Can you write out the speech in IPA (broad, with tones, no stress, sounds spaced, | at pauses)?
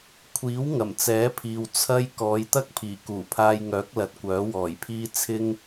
kʷʰ iː˨˥ w ŋ ɐ˨˩ m t͡s ɛː˨˥ pʰ iː˨ w t͡sʰ ɐ˥ j k ɔː˨˧ j t̪ ɐ˥ k̚ pʰ iː˨˩ k uː˨˩ pʰ aː˧ j ŋ œː˨˥ k̚ l ɐ˨ t̚ kʷ œː˨˥ w ɔː˨˩ j pʰ iː˥ t͡sʰ ɪ˥ ŋ